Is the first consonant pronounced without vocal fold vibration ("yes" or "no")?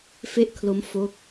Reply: yes